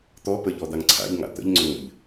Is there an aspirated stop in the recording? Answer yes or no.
yes